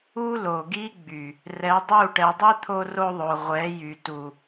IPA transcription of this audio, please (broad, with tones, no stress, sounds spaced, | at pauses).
u˦ l o˨ ɡ i˦ ɡ͡b y˨ | r ɛ˨˦ dˤ u˦˨ ʈ ɛ˨ dˤ i˦ t̪ʰ o˦ r o˦ ðˤ o˨ ʁʷ ɛ˨˦ j y˨ t u˨